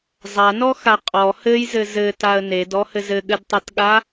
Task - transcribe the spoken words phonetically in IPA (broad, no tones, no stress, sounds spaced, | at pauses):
zˤ a n ɔ x a qʼ ɔ h ɘ j z ɘ z ɘ t a ə̯ n e d ɔ h ɘ z ɘ ɠ ɘ d tˤ a t ɠ a